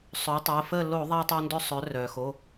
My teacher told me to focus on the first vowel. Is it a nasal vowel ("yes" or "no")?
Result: no